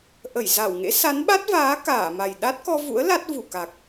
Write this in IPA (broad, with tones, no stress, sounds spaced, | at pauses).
ʔ ə˧˩ j z a˧˩ w ŋ ḛ˧˥ s a˨˦ n ɓ a˦˥ t̚ v aː˨˦ k aː˧˩ m a˨˩ j ɗ a˦˥ t̚ k ɔ˧ v ṵ˧˥ ə̯ l a˦˥ t̚ v u˧˩ k a˨˩ k̚